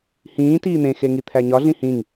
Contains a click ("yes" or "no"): no